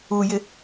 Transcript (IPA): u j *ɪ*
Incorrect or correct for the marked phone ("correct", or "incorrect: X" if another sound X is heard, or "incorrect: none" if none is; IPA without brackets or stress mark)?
correct